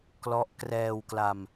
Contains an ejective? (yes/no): no